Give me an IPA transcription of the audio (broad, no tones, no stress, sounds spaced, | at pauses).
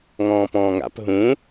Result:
ŋ ɔ̃ː p ɔ̃ː ŋ a̰ p ɦ ũ